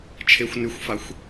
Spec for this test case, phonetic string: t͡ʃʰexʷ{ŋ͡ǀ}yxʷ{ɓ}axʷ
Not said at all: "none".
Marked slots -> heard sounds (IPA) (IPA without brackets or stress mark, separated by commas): n, f